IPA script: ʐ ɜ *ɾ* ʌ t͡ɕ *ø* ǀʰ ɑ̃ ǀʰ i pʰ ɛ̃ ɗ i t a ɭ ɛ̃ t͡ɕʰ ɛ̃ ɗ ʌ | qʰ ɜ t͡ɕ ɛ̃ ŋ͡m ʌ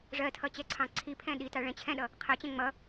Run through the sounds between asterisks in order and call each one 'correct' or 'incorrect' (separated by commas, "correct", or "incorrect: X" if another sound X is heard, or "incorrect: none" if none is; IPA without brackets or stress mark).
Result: incorrect: tʰ, incorrect: ɛ